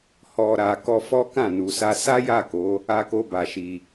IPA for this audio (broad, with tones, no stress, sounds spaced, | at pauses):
h ɔ˨ ɾ a˨ k ɔ˧ f ɔ˦ k ã˦˨ n u˨ s a˧ s a˦ j a˦˨ k o˨˦ | a˦ k o˦ b a˧ ʃ i˧